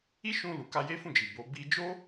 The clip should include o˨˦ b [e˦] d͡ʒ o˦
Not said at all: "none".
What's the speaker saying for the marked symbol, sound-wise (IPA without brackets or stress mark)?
i˦